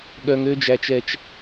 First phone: ɠ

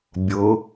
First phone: bʲ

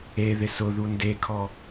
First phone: e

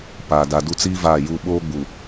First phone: p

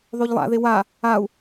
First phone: ðˤ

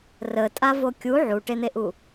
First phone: r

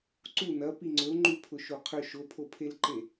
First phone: ǀ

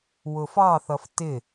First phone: w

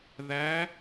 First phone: ð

